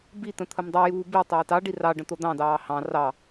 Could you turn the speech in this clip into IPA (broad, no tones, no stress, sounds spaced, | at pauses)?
b i t̪ ə̃ t̪ʰ ə m dˤ i j uː b i tˤ ɑ i̯ t ɑ ɖ i r ɑ ɖ ə̃ t̪ o d̪ ɑ̃ d ɑː h ɑ̃ r ɑ